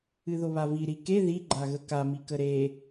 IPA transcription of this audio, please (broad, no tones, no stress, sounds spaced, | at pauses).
ɨ ð o β a v i ɾ i k e ð i ɡ͡ǃ a ɣ ə k a m i k ə ɾ e